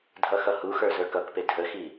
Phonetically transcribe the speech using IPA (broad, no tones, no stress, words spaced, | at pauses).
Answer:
dʱʌxʌhuxə˞ zə˞kʌkpe dʱəxi